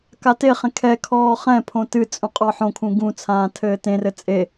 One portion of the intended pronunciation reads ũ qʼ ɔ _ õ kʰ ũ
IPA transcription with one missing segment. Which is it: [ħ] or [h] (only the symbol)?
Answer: ħ